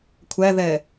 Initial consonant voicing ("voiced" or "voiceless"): voiceless